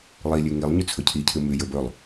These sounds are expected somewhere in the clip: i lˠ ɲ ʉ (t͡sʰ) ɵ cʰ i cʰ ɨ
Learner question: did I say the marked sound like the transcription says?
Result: yes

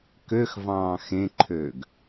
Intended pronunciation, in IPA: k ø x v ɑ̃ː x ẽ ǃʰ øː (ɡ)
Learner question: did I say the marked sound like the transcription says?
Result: yes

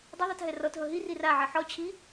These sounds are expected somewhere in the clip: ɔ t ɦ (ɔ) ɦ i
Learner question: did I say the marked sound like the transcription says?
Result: no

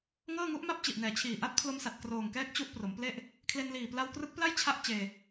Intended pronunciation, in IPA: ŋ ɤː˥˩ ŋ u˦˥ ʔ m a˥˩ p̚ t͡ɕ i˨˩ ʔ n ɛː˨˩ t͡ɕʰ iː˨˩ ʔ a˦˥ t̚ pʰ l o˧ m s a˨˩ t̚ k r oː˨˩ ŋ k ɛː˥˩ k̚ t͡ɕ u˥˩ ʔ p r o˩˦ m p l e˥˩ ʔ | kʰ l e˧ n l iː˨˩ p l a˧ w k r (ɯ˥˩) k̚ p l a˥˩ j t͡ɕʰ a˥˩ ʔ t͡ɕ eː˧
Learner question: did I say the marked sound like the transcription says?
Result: no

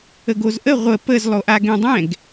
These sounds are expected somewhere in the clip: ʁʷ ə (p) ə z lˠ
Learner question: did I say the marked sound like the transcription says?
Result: yes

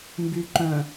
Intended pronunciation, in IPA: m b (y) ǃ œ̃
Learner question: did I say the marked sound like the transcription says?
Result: yes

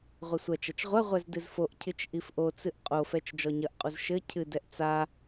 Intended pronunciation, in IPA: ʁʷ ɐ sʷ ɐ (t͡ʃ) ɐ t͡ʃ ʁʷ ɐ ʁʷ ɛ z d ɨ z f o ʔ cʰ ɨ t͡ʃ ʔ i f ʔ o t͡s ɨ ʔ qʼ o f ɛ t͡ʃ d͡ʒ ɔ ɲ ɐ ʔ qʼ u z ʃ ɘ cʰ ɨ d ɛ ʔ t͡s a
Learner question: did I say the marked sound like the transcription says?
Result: yes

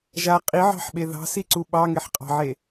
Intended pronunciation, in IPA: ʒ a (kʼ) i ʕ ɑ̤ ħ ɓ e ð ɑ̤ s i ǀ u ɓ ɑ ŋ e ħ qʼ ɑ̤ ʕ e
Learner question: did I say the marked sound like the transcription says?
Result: no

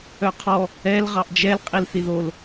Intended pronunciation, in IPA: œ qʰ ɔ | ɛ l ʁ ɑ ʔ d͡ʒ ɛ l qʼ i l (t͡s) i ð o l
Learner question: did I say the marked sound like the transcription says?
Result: no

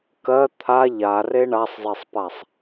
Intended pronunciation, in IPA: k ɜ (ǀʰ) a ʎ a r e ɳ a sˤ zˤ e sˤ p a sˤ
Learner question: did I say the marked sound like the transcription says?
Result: no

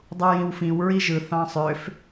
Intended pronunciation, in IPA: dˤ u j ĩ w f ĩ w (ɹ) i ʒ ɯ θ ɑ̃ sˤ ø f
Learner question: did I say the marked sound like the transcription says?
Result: yes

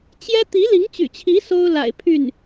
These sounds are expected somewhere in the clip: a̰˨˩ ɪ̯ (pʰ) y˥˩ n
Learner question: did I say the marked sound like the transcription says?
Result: yes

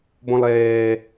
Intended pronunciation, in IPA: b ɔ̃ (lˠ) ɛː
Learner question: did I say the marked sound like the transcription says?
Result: yes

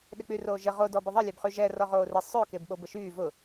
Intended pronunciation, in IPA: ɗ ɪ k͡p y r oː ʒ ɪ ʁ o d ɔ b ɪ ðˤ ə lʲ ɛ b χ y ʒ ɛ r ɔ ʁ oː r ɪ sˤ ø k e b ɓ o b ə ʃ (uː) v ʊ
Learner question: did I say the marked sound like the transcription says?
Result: no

